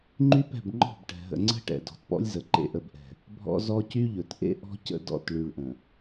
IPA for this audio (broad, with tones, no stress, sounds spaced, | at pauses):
ŋ͡ǃ y˦ p ɛ̤˦˨ b ŋ͡ǃ ɔ̤˦˨ b ʈ ɛ̤˨ ɦ ə̰˨ ŋ͡ǀ ə̤˦ ʈ ɛ̰˨ d ɔ̤˨ t p ɔ̰˦ lʲ z ə˨ ǃ ḛ˨ ʔ ə˨ b ʔ ɛ̤˨ | bʱ ɔ̰˦ z ɔ˦ c y˦ ʎ ɵ˨ t ʔ ḛ˦ ʔ ɔ̤˦ c ə̰˦˨ d ɔ̰˦˨ t ɭ y˨ ɭ ʔ ə̃˨